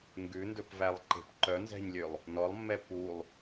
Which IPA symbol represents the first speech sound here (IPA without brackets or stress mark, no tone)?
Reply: ŋ